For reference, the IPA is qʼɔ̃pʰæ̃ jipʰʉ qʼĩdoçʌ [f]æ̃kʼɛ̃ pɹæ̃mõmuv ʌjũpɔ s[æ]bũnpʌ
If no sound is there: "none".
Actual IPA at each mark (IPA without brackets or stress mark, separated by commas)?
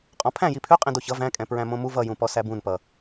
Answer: v, æ